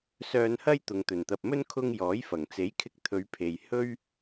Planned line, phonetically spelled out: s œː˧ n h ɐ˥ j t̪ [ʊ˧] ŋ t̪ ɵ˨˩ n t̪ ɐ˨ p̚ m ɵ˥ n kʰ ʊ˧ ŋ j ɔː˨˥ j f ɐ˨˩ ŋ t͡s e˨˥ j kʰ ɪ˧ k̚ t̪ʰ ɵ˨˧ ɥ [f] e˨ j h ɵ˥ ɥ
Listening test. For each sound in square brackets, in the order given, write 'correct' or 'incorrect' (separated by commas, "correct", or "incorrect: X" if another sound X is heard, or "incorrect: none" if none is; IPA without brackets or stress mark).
incorrect: ʊ˨, incorrect: pʰ